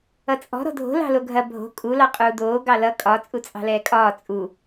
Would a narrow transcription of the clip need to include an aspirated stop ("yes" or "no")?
no